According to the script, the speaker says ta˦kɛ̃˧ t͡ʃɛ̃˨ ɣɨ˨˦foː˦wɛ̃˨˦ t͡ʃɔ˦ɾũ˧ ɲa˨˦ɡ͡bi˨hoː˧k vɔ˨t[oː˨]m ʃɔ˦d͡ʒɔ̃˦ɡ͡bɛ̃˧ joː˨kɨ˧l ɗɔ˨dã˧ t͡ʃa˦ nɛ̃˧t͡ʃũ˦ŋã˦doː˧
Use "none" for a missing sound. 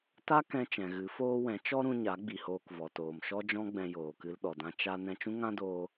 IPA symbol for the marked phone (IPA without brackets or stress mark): oː˨